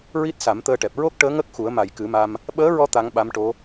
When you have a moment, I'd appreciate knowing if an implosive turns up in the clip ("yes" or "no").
yes